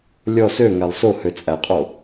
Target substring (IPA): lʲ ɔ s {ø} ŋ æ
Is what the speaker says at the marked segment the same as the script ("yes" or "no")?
yes